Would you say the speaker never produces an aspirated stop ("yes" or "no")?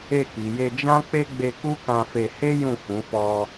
yes